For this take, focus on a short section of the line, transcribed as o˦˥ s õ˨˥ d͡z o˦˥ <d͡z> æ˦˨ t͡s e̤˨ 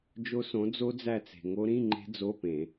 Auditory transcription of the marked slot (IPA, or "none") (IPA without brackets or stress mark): d͡z